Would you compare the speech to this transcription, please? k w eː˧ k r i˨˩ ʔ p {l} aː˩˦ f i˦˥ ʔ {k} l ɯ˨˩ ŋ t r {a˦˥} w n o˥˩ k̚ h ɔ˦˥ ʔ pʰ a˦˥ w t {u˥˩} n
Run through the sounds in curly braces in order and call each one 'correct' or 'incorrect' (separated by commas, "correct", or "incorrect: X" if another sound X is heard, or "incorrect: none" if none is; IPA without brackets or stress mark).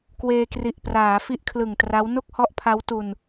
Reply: incorrect: r, incorrect: kʰ, correct, incorrect: u˧